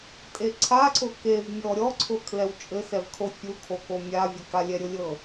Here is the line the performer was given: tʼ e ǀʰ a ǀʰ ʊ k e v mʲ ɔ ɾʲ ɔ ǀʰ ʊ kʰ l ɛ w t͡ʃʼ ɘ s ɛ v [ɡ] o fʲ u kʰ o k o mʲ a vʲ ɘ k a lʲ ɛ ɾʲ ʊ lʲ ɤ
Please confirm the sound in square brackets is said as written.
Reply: no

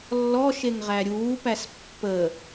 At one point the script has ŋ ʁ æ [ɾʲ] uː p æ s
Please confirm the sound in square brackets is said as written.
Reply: yes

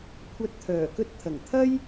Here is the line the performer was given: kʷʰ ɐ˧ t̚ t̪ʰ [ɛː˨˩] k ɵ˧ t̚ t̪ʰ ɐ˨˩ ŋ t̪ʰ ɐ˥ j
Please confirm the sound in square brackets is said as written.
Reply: no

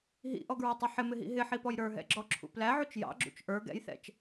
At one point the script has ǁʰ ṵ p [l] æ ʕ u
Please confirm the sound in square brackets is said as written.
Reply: yes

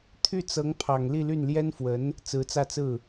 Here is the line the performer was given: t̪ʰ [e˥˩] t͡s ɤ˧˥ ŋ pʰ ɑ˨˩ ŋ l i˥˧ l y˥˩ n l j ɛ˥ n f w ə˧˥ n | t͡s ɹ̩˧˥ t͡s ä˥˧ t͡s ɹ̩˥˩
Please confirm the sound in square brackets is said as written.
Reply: no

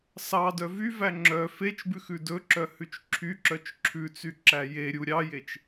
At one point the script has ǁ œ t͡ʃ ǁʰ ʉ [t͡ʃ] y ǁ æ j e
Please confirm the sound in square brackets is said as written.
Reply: no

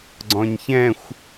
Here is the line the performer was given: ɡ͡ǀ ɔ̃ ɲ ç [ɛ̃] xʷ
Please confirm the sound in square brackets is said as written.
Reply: yes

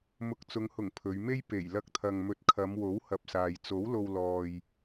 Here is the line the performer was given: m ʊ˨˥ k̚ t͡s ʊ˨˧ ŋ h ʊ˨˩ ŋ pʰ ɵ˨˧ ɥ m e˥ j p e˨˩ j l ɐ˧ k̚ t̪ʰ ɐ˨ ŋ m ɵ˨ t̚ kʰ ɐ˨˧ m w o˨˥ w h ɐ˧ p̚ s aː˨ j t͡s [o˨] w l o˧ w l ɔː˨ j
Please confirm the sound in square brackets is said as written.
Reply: no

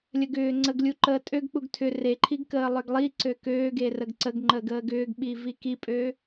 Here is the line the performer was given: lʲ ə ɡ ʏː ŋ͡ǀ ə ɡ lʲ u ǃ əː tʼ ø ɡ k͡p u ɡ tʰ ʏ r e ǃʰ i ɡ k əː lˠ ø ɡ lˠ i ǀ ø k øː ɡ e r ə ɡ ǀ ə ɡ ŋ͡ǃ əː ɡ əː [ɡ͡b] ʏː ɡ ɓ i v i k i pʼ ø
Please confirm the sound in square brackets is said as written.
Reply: no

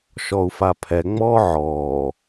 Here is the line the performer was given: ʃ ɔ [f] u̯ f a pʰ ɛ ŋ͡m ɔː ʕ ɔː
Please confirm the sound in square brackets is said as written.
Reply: no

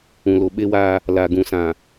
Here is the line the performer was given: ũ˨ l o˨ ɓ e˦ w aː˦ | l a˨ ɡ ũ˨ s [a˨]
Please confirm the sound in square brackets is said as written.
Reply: no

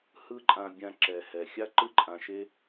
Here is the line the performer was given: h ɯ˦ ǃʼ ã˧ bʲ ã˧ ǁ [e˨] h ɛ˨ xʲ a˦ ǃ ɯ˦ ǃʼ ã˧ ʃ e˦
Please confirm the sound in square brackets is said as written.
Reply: no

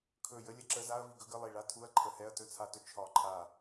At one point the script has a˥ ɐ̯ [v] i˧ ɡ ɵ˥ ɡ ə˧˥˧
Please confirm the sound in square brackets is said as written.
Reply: yes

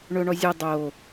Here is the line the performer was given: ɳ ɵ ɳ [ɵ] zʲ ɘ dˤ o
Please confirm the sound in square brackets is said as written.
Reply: no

